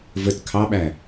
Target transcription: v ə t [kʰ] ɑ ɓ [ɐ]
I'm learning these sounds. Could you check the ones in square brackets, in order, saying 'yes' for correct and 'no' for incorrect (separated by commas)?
yes, no